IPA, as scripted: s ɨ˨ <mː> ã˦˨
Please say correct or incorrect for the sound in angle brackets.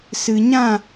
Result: incorrect